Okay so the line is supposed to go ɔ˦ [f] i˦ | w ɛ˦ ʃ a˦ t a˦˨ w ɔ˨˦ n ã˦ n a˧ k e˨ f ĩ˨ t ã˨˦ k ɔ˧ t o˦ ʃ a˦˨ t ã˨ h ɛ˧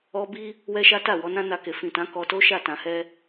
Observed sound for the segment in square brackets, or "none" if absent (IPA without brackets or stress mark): b